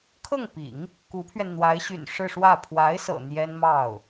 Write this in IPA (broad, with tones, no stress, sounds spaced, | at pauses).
kʰ ɤ˥˩ ŋ p ḭ˨˩˦ ŋ | k u˧˥ pʰ ɥ ɛ˧ n n̪ w a˧˥ ɪ̯ ɕ y̰˨˩ n ʂ ɻ̩˥˧ ʂ w ä˥˩ pʰ w a˧˥ ɪ̯ s ɤ̰˨˩ n̪ j ɛ˥ n m ɑ˥˩ ʊ̯